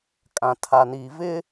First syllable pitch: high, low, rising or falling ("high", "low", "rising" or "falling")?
low